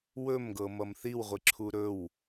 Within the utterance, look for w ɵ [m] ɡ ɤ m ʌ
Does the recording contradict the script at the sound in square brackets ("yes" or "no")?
no